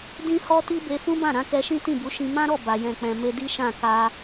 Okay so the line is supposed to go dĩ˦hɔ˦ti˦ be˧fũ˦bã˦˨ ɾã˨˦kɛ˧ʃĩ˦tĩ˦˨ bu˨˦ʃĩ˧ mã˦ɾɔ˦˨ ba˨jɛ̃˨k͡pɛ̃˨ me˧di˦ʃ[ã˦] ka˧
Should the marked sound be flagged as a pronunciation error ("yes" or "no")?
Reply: yes